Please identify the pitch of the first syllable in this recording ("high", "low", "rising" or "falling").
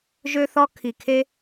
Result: high